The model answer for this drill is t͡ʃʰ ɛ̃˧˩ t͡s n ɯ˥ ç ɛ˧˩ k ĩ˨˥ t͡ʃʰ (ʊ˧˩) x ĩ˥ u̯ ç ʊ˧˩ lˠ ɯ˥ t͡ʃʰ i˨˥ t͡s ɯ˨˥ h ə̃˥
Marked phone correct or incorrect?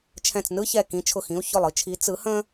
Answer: correct